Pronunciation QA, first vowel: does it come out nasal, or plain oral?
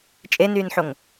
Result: oral